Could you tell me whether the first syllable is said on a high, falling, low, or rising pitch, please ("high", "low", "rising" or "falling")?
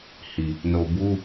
low